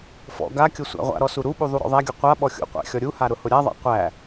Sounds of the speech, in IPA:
fɔ̰ ɡakʲʊ sʷæ̰ʁʷa̰ɾɔ suɾuɓu ðˤuɾɔ̰ðˤæɡʲɔ qʷa ɓɔxʲṵqʷæ̰ xʲɔɾʲuha ɾʊhʊɾʲaðˤa̰ qʷæ

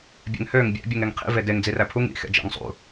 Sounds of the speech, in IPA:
bʲḛŋhøŋ bʲæ̰ bʲuŋeŋqʰḭ vedeŋ d͡ziræpʰuŋ ḭ xḛd͡ʒæ̰ŋsˤṵ

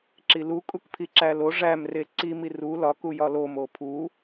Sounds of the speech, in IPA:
ǁilu kʼukpʰiǁælo ʐæm reǀi miru lɒk ujɒlom opʰu

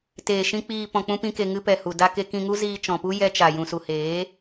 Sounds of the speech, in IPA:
teː˨ʃĩ˧ k͡piː˧ pɔ̃˧k͡pũ˦pĩ˦ke˧ ŋɨ˧pɛ˨hu˨da˧ ke˧kĩ˧ŋu˦ ziː˧t͡ʃɔ̃˨pu˦ jɛ˧t͡ʃa˨ jũ˨su˨heː˨˦

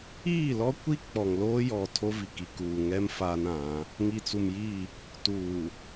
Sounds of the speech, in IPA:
iː˦˨lɔ˦kʷi˦ k͡pɔ˨ŋloː˦jɔ˨ tʰo˦vi˨ki˨ kuː˨ŋɛ˦m fa˦nã˨˦ | ŋi˨t͡su˨mji˦˨ | tuː˨

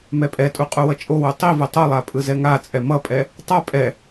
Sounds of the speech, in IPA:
mɛpʼɛtʼu qʼuwʌt͡ʃʼowu tˤivɯ tˤolˠa pʼɯzɛŋat͡sʼɛ mʌpʼɛ | tˤa pʼɛ

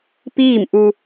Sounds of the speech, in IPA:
piː˥˨mʔu˧

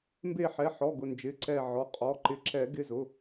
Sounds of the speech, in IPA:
mbe˧˩ħɛ˩˧˩ħɔ˩˧˩ ɡʊ˩˧˩nd͡ʒɪ˩˧˩ ǀɛ˧˩ ʕɔ˩˧˩qʼɔ˩˧˩ ǃɪ˨˩˦ǁɛ˨˩˦ ɡɪ˩˧˩zʊ˩˧˩

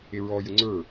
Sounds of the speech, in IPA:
ɪɹɔ jʊŋ͡ǀə˞

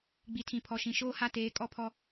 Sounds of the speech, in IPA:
ɡ͡bi˨tʰĩ˨pʰɔ˨ ʃĩ˨ʃoː˦ha˦ teː˨˦kʼɔ˦pʰɔ˦

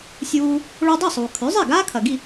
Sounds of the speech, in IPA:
sʲuː˧ | ɭo˧dˤi˥˩sˤuː˩ kʰʉ˩˥zˤe˥˩ ɡaː˥kʰɐ˩ɡi˥˩

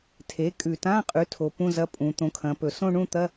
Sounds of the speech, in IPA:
tʰe˩˥kʼʉ˨˩tã˧˥˧ qʼʉ˩˥tʰo˩˧ pũ˧˥˧zɐ˧˥˧pʼũ˩˧ t̪õ˩˥kʰɐ̃˩˧pɵ˨˩ sõ˥˧ɳũ˥˧t̪ɐ˧˥˧

